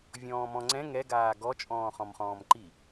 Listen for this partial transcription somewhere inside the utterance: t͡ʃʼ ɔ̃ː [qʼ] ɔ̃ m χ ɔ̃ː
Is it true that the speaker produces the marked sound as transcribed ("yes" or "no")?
no